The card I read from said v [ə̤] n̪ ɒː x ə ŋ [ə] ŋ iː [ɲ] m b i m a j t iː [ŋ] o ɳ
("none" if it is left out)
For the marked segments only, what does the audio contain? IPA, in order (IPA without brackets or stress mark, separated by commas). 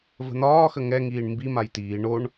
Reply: ə̤, ɛ, ɳ, ɳ